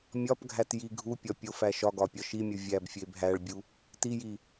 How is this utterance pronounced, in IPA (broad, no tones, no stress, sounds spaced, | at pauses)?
mʲ ɒ p ɡʱ æ t j i ɡʱ u pʲ ɒ pʲ o f æ ʃ ɒ ɡ ɒ pʲ ɒ ʃ i mʲ u vʲ æ b fʲ e b ɦ æ ɭ bʲ u | t i j i